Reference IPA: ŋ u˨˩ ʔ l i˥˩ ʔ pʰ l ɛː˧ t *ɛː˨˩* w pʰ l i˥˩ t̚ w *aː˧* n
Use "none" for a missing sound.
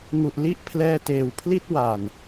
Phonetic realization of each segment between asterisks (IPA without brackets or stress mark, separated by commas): eː˨˩, aː˨˩